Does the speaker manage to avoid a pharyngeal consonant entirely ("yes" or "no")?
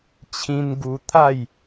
yes